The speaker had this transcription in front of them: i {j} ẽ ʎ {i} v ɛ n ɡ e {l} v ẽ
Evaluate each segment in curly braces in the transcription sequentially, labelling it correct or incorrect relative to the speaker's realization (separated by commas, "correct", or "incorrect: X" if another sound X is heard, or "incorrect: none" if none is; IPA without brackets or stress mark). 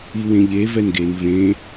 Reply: incorrect: w, incorrect: e, incorrect: n